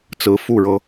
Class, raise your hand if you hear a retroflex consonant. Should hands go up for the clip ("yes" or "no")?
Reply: yes